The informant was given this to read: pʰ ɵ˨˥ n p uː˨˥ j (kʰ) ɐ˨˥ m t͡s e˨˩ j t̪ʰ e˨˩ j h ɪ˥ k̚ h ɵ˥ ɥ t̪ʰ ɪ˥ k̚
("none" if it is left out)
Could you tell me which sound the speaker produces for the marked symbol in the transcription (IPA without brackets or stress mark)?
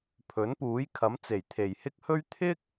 kʰ